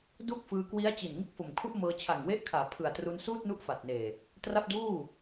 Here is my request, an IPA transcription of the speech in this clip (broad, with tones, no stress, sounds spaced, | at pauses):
d u˥˩ k̚ f ɯː˧ k w i˦˥ a̯ t͡ɕ i˨˩ n ŋ ɯ˥˩ k̚ f o˨˩ m kʰ u˥˩ ʔ m ɤː˧ t͡ɕʰ a˨˩ ŋ w e˦˥ ʔ kʰ aː˩˦ pʰ ɯ˨˩ a̯ t r u˧ n s uː˥˩ t̚ n u˦˥ ʔ f a˨˩ t̚ n eː˨˩ | t r a˥˩ p̚ d uː˥˩